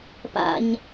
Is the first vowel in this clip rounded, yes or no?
no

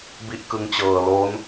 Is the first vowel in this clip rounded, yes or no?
no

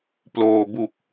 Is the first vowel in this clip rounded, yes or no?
yes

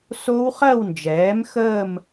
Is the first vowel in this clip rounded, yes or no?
yes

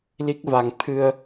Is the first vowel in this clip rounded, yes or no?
no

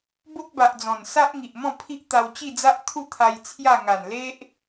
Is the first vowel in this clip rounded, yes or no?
yes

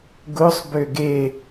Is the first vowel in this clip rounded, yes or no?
yes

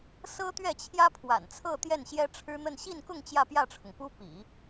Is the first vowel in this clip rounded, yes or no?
no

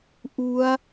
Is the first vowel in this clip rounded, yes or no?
yes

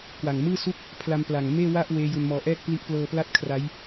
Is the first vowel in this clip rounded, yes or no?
no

